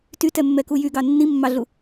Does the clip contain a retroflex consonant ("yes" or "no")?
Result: no